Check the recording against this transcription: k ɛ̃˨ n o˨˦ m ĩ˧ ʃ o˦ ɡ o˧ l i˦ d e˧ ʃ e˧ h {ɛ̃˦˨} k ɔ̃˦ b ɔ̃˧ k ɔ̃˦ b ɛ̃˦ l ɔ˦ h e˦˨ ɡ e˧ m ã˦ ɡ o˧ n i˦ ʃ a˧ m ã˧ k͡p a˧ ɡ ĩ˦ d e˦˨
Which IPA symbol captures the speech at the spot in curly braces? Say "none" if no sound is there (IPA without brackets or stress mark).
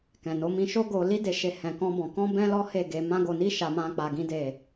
ɛ̃˧